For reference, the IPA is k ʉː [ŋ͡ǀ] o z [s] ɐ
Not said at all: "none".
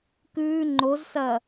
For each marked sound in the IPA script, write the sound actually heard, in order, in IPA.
ŋ͡ǃ, s

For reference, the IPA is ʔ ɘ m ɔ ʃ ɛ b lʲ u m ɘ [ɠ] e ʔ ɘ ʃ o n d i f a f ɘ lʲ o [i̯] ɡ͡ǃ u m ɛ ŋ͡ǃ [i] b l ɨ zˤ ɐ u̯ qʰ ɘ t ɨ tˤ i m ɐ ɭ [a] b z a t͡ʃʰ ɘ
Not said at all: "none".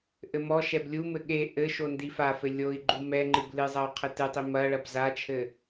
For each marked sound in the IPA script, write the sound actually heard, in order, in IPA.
ɠ, i̯, ɨ, ɐ

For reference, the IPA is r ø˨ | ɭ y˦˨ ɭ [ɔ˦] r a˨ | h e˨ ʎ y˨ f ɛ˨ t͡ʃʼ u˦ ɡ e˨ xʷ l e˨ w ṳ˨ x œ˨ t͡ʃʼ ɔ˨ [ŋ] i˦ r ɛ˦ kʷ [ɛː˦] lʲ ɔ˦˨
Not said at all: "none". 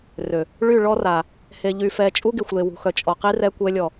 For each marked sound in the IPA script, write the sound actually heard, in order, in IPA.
ɔ˦, q, ɛ˦

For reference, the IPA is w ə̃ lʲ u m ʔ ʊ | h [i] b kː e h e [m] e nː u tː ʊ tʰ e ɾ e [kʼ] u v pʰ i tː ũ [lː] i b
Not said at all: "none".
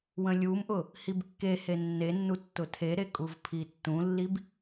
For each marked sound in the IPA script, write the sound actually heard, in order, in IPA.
i, nː, kʼ, lː

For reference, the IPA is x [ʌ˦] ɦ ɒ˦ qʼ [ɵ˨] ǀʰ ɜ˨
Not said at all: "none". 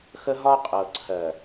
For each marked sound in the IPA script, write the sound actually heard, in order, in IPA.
ə˦, ɤ˨

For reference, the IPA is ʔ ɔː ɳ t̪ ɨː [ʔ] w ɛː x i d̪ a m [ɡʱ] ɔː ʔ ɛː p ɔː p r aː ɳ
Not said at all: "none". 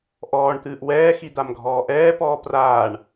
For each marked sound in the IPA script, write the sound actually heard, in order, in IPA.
ʔ, ɡʱ

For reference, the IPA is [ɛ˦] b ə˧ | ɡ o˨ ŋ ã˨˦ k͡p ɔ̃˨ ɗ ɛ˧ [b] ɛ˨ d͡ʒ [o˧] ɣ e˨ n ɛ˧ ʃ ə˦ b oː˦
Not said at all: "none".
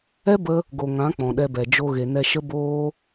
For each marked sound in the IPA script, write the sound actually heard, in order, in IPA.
ɛ˦, b, o˧

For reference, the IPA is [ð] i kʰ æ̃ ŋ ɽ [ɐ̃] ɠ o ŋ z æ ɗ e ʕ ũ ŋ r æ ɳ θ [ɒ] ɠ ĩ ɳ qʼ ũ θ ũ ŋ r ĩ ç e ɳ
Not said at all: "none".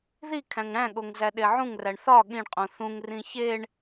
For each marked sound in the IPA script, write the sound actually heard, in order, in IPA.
ð, æ̃, ɒ

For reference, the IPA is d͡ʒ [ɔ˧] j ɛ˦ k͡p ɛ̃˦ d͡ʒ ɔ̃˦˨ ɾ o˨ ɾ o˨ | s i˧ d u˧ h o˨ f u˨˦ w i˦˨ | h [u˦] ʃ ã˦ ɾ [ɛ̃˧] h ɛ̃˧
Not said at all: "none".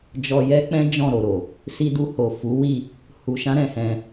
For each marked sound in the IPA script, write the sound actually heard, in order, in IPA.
ɔ˧, u˧, ɛ̃˧

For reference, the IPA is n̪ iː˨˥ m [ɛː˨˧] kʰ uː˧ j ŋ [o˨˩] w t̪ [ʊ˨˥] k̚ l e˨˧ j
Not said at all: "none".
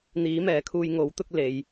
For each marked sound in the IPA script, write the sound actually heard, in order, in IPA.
ɛː˨˧, o˨˥, ʊ˥

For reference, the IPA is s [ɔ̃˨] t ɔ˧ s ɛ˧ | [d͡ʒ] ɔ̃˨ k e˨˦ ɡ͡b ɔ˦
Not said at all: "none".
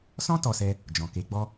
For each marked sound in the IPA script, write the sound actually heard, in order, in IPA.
ɔ̃˦, d͡ʒ

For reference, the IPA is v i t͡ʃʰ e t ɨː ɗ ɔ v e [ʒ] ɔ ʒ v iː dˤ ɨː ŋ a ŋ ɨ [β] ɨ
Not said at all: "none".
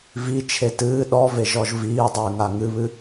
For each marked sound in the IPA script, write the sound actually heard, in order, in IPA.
ʒ, β

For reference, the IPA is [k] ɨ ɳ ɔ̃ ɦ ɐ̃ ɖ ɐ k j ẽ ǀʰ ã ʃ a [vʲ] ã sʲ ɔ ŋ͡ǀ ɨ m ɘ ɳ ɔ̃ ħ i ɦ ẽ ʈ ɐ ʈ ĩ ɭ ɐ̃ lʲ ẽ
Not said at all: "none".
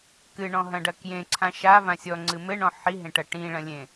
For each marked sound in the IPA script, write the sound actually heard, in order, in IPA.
k, v

